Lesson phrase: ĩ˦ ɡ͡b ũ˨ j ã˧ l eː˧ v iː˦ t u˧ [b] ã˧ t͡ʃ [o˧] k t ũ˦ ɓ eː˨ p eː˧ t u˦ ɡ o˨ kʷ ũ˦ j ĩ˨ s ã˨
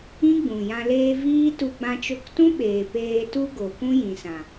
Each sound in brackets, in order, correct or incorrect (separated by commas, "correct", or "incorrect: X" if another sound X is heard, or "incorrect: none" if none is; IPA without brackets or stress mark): incorrect: ɡ͡b, correct